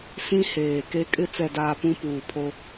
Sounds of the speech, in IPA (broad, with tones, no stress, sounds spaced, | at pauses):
s ĩ˦ h eː˨ k e˦ kʼ ɪ˦ t͡s ɛ˨ d aː˨ p ũ˦ p uː˨ pʰ o˦